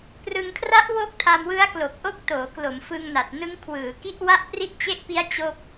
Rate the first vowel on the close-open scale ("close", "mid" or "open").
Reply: close